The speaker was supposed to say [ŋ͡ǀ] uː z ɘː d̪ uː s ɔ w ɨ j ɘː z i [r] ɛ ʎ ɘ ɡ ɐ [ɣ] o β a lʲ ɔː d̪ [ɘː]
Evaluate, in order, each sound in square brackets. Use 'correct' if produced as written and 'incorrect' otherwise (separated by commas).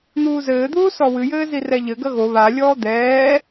incorrect, correct, correct, incorrect